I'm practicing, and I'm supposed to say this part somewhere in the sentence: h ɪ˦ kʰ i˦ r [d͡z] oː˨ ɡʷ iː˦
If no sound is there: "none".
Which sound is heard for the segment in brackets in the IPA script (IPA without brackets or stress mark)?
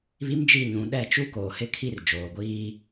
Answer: d͡ʒ